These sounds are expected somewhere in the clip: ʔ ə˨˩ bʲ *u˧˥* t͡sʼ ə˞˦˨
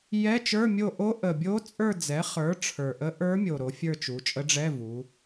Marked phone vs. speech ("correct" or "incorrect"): incorrect